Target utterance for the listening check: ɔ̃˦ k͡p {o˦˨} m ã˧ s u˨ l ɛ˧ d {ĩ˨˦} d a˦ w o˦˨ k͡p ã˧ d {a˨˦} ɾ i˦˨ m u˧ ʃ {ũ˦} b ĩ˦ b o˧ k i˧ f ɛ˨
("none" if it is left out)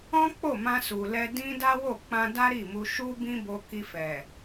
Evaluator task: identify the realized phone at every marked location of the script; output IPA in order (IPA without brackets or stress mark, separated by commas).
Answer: o˦˨, ĩ˦, a˦, u˦